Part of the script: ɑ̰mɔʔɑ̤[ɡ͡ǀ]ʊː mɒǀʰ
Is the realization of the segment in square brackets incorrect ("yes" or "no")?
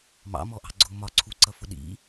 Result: no